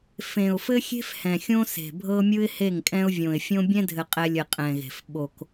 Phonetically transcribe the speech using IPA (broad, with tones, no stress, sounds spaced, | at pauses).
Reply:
f ẽ˨ ʊ̯ f ɘ˦ xʲ e̤˦ f h ɛ̃˨ xʲ õ˦ s e̤˨ bʱ ɤ˦ mʲ ɯ˦ ɪ̯ h e˦˨ ŋ kʼ ɛ̃˦ ʊ̯ vʲ õ˨ ɪ̯ fʲ õ˦ bʲ ɛ̃˦ dʱ ɘ˨ qʼ ɛ˨ lʲ ɘ˨ qʼ ɛ̃˨ ɣ e̤˨ f ɓ o˨ k